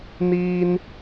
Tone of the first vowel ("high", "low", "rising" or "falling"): high